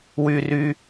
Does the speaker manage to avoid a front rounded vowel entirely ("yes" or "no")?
no